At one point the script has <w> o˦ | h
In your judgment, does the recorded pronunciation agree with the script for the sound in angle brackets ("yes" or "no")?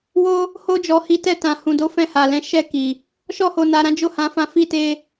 yes